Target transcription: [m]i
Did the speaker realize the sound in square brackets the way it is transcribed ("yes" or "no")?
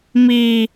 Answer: yes